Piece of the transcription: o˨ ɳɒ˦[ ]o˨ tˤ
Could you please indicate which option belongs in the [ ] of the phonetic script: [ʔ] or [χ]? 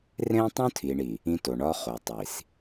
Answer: χ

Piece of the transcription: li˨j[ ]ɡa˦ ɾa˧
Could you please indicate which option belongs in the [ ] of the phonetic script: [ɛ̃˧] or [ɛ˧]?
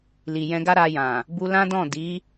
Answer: ɛ̃˧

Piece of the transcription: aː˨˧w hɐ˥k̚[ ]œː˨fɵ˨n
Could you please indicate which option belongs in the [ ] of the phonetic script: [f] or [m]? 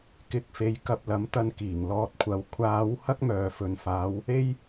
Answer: m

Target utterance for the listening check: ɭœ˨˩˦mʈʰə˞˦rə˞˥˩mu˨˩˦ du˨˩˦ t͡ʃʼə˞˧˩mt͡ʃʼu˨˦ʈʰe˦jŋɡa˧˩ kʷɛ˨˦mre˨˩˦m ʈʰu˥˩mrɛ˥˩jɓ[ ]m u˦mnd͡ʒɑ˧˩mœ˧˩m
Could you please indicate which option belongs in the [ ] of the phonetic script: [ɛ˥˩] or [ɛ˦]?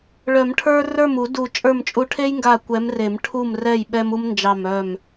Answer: ɛ˦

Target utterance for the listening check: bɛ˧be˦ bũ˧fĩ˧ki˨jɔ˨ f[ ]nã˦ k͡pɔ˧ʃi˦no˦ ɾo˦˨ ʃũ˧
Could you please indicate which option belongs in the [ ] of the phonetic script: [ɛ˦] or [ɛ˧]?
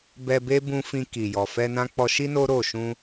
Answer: ɛ˧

